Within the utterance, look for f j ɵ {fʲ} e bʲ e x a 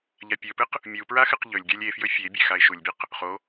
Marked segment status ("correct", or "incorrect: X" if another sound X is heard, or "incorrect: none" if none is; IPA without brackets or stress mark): correct